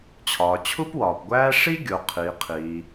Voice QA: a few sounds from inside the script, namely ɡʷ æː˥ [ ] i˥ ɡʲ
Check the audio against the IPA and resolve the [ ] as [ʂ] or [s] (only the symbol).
ʂ